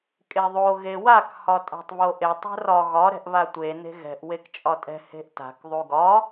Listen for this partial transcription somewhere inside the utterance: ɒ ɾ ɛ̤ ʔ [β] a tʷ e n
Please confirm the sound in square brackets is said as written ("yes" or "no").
yes